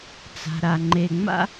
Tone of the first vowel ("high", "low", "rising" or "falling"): low